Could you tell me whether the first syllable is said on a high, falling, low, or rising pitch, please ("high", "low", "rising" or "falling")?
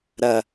low